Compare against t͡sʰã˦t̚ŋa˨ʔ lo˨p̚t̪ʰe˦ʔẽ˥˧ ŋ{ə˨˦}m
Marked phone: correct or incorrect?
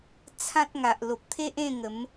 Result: correct